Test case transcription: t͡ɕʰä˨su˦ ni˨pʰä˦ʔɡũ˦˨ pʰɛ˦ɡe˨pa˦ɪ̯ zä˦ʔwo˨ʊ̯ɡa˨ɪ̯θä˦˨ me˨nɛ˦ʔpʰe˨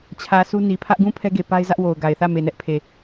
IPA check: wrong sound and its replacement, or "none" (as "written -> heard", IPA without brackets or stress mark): none